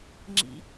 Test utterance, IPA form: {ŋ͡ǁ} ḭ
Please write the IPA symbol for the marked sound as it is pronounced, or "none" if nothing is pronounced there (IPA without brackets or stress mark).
ŋ͡ǁ